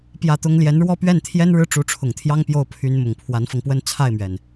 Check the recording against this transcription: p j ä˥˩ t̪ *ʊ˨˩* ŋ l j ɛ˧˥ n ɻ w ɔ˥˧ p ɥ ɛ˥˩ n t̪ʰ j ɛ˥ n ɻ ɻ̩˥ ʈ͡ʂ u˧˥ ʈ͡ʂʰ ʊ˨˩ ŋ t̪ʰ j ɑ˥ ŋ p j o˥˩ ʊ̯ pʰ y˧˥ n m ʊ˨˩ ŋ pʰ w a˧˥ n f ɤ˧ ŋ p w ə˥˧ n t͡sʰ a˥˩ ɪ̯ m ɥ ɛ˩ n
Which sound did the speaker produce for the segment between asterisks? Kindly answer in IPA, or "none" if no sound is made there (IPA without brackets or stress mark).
ʊ˥